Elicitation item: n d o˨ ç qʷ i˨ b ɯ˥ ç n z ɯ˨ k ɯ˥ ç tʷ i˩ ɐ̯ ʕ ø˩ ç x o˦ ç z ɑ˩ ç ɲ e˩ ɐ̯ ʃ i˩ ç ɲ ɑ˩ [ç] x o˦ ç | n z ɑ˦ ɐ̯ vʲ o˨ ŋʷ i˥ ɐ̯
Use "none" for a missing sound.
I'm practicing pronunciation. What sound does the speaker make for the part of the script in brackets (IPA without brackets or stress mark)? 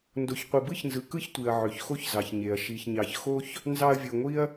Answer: ç